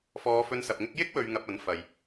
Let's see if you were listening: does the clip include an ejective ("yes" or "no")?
no